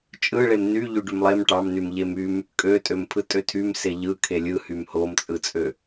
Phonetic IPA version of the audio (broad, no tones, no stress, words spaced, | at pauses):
t͡ʃʼɯɭem ny ʎyɖymlˠem ʈɑmnym ʎemym | kʼøtʼømpʰɯ tʼøtʰym seʎɯ kʰelʲɯhym homt͡sʼɯt͡sʼø